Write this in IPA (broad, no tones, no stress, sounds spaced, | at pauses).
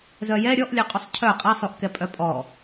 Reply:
z œ j ɛ ɾʲ ɔ ʔ lʲ œ qʼ u sˤ cʰ œ qʼ ɛ sˤ u ʔ k ɛ pʼ œ pʼ ɔ